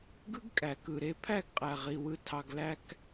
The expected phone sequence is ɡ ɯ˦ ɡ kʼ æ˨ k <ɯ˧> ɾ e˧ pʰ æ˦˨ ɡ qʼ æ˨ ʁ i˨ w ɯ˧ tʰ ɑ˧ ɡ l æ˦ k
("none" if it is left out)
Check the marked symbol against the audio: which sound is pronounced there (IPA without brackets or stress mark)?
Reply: ɯ˨